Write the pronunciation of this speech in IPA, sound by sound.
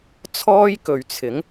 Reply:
t͡sʰ ɔː˥ j k ɵ˨ ɥ t͡sʰ ɪ˨˥ ŋ

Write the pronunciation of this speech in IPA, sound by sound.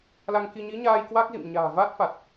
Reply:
l a˧ ŋ k i˧ ɲ i˨˦ ɲ aː˧ j k w a˦˥ k̚ z ḭ˧˨ m ɲ a̤ː˨˩ v a˦˥ t̚ f a˨˩ t̚

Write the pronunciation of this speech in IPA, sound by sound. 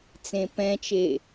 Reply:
t͡s ẽ p ɛ̃ t͡ʃ e

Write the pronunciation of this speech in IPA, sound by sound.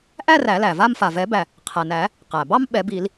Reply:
ʔ æ˥˧ r æ˨˩˦ l æ˩ v a˥˧ m f a˩ v ɛ˨˩˦ b æ˩ | qʰ æ˩ n æ˨˩˦ | q æ˩ b ɑ˥˧ m ɓ ɛ˨˩˦ b i˨˩˦ l

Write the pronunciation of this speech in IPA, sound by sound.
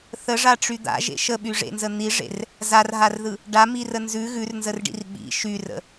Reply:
θ ə ʐ a ʈ͡ʂ y d̪ a̰ ʒ ḛ ʃ ə ɓ y ʐ ḛ n z ə n̪ i ʐ ḛ r | z a r ɦ a r ð ɯ | ɖ a m i r ə n z ʉ ɣ ʉ r n z ə r ɖ ḭ r ɓ ḭ ʃ y r ə̰

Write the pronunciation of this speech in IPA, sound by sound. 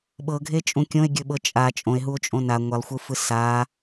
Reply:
ɓ ɤ ɡʱ e t͡ʃʼ ũ kʲ õ e̯ ɡʲ ɵ ɓ ɤ t͡ʃʼ a t͡ʃʼ õ e̯ ɦ u o̯ t͡ʃʼ õ n a ŋʷ e lˠ xʷ ɯ f ɯ s a

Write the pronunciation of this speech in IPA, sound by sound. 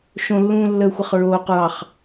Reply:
ʃ õ lː ũː lː əː xʷ ə χ ɹ oː q ɹ ɑ χ

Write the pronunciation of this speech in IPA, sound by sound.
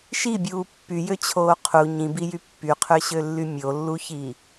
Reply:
ʃ i bʲ uː pː y j ø t͡ɕʰ oː qʰ u ɲ ĩ b i j y pː y qʰ ø ɕ ø lː y mʲ o lː u ç i

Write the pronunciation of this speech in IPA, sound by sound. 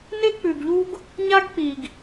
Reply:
n e˦ k͡p ʉ˨ ɡ ʎ u˦ ɡ | ɲ a˦ ɡ k͡p i˨ ɡ

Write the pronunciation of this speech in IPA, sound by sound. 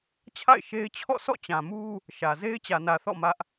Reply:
t͡ɕʰ a̰˦˨ ɪ̯ ʃ e˦ ɪ̯ t͡ɕʰ ɔ̰˦˨ s ɔ̰˦˨ t͡ɕ ã˨ m u˦ | ʃ ä˨ z e˦ ɪ̯ t͡ɕ ä˨ n ä˨ θ ɔ̰˦˨ m ä˦ ʔ

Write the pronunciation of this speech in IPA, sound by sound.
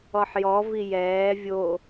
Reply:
ɔ ħ j ɔ v i j ɛː vʲ o

